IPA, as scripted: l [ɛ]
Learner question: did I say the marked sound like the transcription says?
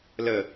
no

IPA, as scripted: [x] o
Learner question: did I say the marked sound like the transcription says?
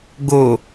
no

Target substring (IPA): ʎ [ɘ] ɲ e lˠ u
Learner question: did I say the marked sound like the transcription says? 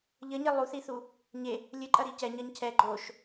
yes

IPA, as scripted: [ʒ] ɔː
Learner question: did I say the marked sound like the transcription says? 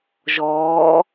yes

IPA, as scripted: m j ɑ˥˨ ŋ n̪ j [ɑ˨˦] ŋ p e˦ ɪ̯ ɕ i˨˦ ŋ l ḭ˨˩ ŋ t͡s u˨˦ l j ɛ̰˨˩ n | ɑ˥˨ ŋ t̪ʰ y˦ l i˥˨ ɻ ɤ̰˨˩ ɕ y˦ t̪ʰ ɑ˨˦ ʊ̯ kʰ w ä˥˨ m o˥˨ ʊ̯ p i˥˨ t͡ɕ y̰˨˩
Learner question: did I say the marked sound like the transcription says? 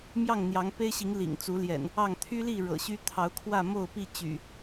yes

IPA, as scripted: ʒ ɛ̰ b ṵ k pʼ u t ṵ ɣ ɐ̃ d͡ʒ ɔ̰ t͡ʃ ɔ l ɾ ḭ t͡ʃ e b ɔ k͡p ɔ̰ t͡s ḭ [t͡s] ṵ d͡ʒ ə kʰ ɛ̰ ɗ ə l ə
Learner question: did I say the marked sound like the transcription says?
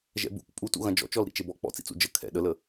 yes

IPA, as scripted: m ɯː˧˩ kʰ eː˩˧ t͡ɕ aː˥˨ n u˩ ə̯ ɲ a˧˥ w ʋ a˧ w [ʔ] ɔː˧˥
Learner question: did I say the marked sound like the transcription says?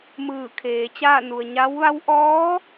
yes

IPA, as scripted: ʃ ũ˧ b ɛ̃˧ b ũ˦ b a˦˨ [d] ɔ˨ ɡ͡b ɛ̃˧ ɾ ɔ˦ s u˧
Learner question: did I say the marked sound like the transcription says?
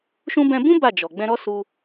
no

